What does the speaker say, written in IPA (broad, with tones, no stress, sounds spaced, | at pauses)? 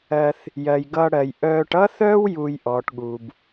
ɜ˨ θ | j ɜ˩ j ɡ ʌː˨ ɽ ɜ˩ j ʔ œː˨ ʈ ʌ˦ θ œː˥ w j uː˨ j ʔ ɔː˩ ʈ ɠ uː˩ b